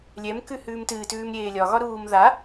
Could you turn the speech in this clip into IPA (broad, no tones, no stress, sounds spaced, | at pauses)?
lʲ ɛ m k ʉ h ʉː m t ɨː t ʉː m ɾʲ eː lʲ ɒ ɣ ɒ ɾ uː m ð a